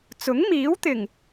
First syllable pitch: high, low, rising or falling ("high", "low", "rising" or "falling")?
rising